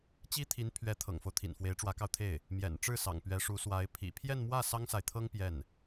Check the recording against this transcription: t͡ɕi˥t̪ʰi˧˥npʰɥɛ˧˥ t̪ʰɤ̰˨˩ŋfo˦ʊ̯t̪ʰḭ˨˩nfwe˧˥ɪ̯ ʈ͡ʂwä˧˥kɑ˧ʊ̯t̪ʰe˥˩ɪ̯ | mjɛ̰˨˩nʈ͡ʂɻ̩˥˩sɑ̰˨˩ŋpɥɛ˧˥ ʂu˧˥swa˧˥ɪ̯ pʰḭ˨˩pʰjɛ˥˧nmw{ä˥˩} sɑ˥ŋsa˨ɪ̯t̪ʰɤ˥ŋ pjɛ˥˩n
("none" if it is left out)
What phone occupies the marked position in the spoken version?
ä˥˩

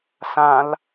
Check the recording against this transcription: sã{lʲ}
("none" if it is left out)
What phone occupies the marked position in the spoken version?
l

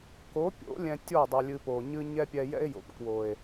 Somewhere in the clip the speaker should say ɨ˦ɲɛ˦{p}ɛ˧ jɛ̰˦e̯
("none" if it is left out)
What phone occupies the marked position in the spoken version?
pʲ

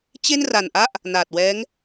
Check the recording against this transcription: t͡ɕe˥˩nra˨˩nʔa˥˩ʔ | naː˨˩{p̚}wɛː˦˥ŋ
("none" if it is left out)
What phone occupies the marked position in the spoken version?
t̚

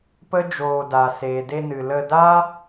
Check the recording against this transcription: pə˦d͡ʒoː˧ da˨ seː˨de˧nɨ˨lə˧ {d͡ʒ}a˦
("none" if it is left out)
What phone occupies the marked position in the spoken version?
d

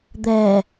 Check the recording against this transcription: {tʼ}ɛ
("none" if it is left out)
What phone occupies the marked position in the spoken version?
d̪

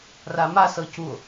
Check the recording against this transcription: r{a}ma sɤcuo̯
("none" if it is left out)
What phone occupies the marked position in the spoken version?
a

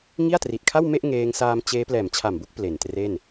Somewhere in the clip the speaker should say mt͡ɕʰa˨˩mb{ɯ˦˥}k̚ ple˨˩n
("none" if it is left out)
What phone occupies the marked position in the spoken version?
u˦˥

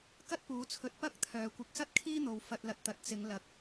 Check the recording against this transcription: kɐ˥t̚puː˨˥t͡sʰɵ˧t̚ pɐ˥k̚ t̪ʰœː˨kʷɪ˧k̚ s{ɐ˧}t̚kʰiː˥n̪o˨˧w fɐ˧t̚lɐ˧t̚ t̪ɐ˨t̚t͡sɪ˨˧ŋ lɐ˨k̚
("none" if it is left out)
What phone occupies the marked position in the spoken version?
ɐ˥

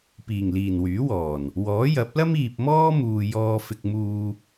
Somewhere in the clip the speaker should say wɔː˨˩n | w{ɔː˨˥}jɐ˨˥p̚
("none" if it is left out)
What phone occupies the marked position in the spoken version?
ɔː˨˥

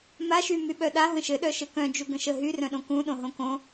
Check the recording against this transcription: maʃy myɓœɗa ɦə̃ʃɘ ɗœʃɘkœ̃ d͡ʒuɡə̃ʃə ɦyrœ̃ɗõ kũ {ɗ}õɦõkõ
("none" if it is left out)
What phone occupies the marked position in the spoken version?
ɗ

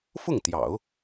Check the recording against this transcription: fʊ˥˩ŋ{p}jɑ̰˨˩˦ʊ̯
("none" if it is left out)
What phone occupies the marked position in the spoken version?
t̪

